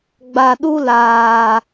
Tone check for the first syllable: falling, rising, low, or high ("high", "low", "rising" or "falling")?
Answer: low